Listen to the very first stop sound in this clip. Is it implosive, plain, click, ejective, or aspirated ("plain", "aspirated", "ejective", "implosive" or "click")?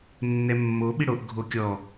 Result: implosive